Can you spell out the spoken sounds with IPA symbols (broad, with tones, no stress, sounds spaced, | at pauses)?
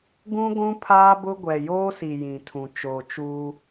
ɡ ũ˦ ɡʷ ũ˦ pʰ aː˦ b ʊ˦ ɡʷ ɛ˨ j oː˦ s i˨ j ĩ˨ tʰ ũ˨ t͡ʃ oː˨ t͡ʃ uː˦